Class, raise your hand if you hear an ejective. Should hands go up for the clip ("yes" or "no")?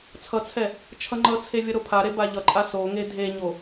yes